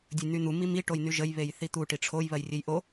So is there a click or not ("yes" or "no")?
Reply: no